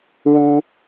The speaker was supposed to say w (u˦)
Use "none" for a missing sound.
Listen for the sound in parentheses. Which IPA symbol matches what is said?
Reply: u˦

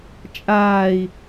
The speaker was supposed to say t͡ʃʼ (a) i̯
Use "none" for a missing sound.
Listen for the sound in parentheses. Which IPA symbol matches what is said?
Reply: aː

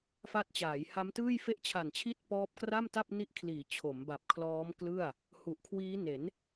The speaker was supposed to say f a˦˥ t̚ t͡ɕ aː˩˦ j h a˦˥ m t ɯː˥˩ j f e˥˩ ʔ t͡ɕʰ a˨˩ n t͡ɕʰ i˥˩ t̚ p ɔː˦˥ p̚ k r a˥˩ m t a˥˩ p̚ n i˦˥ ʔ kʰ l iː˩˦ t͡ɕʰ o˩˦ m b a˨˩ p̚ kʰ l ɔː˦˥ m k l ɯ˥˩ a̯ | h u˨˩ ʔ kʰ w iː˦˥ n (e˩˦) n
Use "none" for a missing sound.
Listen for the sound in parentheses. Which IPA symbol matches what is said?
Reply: e˩˦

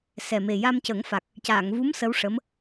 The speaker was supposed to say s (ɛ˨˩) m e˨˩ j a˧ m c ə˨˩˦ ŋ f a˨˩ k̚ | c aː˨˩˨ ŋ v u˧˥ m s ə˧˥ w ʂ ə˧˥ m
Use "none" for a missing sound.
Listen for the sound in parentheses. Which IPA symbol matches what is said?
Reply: ɛ˨˩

